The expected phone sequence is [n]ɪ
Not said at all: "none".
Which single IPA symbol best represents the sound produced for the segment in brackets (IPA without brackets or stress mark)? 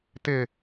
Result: t